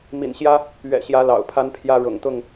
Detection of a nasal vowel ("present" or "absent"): absent